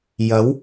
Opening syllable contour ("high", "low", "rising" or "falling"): rising